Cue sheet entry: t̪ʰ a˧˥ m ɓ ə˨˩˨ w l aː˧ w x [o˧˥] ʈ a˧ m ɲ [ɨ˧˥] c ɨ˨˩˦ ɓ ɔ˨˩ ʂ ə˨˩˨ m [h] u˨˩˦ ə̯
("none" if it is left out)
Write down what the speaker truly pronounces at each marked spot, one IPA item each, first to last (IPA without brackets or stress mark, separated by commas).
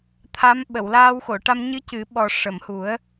o˨˩˨, ɨ˧˥, h